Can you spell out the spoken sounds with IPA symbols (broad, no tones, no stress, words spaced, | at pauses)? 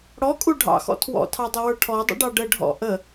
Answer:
ɽɔkʼu ɖʱɑ̰xɔ̰ tʰwɔ̰tʰɑdˤəwə˞ ʈʰɔdˤə̰ɖɑ ɖəɖʱɔ̰ ʔə